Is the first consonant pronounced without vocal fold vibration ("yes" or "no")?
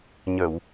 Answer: no